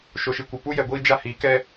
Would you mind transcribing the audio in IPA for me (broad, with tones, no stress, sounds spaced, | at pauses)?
ʃ o˨ ʃ i˨ kʷ ɪ˨ p u˦ j ɛ˨ ɡʷ iː˦ d͡ʒ a˦ h iː˨˦ k ɛ˦